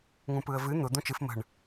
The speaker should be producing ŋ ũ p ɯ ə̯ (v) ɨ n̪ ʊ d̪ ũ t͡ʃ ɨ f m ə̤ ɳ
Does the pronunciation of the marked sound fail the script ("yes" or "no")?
no